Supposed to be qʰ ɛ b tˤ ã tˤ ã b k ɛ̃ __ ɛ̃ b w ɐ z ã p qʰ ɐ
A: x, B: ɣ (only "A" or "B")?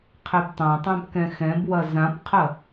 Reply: A